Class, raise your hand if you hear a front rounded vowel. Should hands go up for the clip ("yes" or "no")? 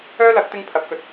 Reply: yes